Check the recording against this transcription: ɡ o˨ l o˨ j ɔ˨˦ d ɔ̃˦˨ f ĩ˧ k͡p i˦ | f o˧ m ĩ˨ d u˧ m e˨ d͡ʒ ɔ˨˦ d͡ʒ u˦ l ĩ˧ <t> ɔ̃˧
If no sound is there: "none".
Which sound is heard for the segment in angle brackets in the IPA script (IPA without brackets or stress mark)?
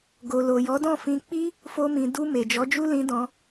d